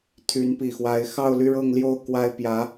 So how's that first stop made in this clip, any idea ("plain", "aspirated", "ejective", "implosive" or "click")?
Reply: aspirated